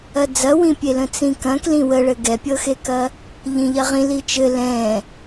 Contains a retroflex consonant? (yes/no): yes